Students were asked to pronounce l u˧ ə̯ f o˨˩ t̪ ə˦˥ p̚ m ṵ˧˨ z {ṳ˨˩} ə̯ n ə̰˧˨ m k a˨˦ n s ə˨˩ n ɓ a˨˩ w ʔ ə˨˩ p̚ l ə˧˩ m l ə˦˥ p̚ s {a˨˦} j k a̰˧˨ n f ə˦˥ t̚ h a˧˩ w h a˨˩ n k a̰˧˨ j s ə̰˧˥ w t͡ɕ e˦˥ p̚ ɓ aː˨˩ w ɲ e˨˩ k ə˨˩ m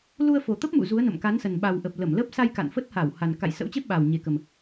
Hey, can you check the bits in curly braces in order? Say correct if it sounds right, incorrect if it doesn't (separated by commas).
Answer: incorrect, incorrect